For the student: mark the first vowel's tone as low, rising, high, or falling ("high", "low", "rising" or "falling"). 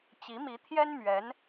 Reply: rising